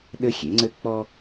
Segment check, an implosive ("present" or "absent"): present